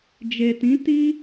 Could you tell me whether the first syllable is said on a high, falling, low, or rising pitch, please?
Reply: low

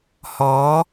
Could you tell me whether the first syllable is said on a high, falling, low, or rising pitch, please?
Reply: rising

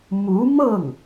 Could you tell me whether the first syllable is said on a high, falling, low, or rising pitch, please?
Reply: rising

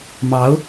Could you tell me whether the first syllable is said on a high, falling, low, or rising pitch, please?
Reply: rising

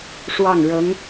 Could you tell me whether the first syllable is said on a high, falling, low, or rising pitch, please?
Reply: falling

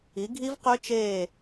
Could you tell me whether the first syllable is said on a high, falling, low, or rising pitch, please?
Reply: rising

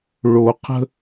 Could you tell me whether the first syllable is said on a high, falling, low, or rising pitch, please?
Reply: low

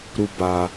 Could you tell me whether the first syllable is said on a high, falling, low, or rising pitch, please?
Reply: high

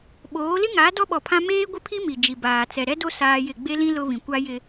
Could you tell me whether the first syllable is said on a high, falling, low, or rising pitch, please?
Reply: rising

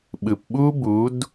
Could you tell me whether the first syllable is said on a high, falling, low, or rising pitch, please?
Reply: low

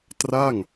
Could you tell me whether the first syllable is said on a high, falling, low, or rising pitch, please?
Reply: falling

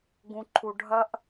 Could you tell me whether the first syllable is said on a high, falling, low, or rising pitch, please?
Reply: low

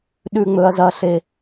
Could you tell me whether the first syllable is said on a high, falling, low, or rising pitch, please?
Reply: low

